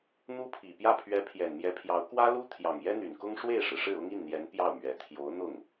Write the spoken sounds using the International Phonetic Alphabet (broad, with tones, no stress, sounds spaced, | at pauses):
n̪ u˥ pʰ i˨˩ p j ä˥˩ pʰ ɥ ɛ˧˥ pʰ j ɛ˨˩ n m j ɛ˧˥ pʰ j ɑ˧˥ ʊ̯ k w ä˥ l u˥ t̪ʰ j ɑ˨˩ ŋ j ɛ˥ n̪ y˨˩ n k ʊ˥ ŋ ʂ w e˥˩ ɪ̯ ʂ ɻ̩˩ ʂ ɻ̩˥˩ ʊ˥ ŋ i˥˩ n n̪ j ɛ˧˥ n p j ɑ˥˩ ʊ̯ m ɥ ɛ˨˩ t̪ʰ j o˧˥ ʊ̯ n̪ ʊ˥˩ ŋ